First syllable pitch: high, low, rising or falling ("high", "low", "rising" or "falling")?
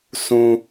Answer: high